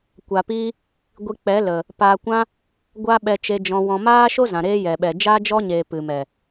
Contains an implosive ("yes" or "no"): yes